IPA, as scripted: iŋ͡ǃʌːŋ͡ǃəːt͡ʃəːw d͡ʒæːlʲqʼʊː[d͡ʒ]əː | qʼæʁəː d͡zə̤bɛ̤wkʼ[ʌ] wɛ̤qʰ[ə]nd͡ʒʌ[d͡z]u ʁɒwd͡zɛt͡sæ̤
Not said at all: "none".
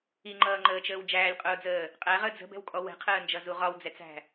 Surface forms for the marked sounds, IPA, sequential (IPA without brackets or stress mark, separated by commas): d͡z, ɔ, əː, z